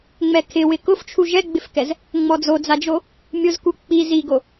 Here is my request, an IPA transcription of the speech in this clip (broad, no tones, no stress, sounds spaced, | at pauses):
ŋ͡m ɛ kʰ ɪ w ɪ k ʊ f t͡ʃʰ u ʒ ɛ ɡ͡b ɪ f k ɛ z | ŋ͡m ɔ d͡z o d͡z a d͡ʒ o | mʲ ʊ z k u k͡p i z i ɡ o